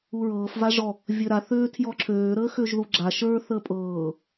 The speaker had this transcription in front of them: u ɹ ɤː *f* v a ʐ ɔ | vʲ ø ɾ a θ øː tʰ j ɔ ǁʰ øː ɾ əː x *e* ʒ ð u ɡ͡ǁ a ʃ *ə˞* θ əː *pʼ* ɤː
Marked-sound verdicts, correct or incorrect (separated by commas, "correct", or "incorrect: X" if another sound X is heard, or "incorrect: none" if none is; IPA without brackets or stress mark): correct, incorrect: ø, correct, correct